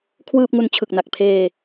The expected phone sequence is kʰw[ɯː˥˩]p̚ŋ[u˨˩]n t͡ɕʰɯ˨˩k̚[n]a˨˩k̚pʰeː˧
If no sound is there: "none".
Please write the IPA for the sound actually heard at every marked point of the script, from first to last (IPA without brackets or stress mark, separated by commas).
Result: ɯː˥˩, u˧, n